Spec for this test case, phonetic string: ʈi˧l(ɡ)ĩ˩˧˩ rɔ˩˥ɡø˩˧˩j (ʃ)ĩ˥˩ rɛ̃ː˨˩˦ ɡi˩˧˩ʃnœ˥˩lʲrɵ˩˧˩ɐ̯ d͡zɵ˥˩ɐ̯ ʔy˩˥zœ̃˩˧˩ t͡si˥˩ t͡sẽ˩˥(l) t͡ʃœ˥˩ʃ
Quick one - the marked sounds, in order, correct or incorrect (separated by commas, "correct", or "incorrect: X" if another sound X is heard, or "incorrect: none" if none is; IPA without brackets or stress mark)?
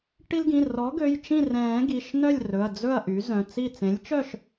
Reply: correct, incorrect: t͡ʃ, incorrect: lʲ